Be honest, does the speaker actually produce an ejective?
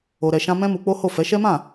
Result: no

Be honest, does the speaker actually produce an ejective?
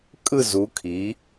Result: yes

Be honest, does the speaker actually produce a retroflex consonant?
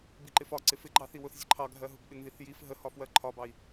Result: no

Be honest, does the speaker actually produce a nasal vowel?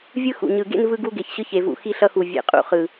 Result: no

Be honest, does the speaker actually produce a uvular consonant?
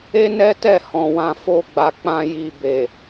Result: no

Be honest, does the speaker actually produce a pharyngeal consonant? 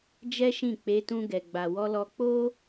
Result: no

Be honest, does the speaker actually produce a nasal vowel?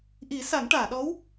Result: no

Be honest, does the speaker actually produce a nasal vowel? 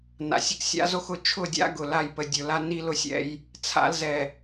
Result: no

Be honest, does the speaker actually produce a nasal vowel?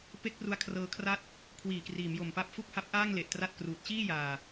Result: no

